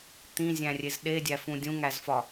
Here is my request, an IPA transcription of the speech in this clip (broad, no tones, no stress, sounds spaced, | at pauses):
t̪ ĩ zʲ æ̃ rʲ e z ɗ e dʲ æ f ũ dʲ ũ ŋ æ z f ɒ